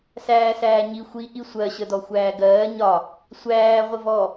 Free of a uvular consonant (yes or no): no